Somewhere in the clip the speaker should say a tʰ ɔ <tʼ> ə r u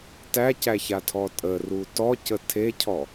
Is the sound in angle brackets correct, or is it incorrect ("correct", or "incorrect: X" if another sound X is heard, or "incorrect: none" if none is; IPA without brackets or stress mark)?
correct